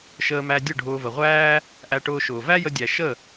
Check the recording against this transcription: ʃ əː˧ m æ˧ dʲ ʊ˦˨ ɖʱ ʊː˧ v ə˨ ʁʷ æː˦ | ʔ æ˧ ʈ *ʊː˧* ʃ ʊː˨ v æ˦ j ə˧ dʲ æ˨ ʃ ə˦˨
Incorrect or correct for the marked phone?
correct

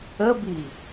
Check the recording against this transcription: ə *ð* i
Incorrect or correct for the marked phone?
incorrect: b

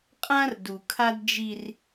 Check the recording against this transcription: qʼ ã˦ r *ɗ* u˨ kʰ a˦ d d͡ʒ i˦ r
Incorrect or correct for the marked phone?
incorrect: d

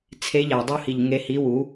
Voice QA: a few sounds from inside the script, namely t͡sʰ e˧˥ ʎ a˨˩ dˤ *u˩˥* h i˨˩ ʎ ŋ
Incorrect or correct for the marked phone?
incorrect: u˥˧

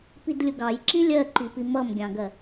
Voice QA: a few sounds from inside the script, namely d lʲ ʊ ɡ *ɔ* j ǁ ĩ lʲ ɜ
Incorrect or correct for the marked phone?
incorrect: ɑ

